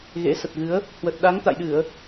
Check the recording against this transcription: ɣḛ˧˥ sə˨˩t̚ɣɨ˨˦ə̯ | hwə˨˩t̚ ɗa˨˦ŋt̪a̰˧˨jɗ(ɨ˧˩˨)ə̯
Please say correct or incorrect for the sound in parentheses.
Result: correct